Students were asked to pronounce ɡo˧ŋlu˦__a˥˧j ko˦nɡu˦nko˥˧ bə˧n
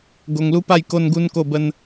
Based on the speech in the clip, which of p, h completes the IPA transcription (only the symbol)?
p